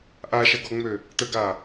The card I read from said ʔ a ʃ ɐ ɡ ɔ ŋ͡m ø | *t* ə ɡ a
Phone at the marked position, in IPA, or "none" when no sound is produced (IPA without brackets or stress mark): t